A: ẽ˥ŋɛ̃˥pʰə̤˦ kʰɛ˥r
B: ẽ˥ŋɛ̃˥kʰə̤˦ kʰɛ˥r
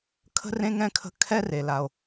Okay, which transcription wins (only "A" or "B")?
B